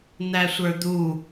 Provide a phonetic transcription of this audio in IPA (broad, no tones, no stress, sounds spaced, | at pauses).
n̪ æ sʷ ə˞ d̪ u